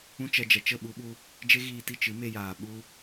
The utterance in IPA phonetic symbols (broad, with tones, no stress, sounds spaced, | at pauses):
ũ˦ t͡ʃ ɛ˧ d͡ʒ ɛ˨ t͡ʃ ə˦˨ ɓ u˧ ɓ u˧ | d͡ʒ e˦ ɣ iː˧ t i˦˨ t͡ʃ ɨ˨˦ m e˧ j aː˨ ɓ u˦